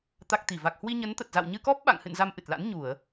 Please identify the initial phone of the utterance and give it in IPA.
t̪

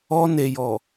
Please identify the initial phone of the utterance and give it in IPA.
ɔ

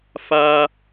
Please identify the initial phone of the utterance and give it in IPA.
f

